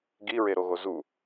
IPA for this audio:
ɡ i ɹ e ɾ o ɣ o z u

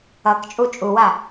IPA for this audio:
ʌ k t͡ʃʼ u t͡ʃʼ u w a

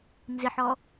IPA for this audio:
n z ɪ ħ ɔ

